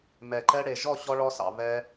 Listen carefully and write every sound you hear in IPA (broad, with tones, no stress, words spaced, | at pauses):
mɛ˨ǃɛ˧ɽe˨ ʒɔ˦˨ɕɔ˧ɭɔ˧sɑ̰˨ βɛ˧